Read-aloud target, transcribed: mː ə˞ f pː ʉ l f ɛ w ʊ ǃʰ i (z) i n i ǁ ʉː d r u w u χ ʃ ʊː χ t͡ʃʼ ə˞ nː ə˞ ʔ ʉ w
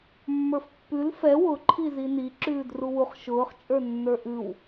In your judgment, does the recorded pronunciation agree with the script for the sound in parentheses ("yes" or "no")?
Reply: yes